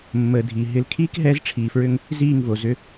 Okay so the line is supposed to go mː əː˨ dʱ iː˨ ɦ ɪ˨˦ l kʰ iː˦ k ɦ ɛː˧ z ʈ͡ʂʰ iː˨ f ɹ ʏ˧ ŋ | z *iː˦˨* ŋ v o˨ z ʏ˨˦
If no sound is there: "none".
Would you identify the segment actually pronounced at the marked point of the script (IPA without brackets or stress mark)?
iː˦˨